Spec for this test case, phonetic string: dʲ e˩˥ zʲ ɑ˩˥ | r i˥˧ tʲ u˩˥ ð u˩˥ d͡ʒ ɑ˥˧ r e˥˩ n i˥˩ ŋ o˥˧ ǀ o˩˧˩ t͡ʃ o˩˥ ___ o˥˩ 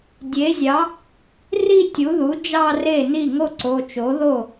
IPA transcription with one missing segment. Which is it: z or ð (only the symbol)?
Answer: ð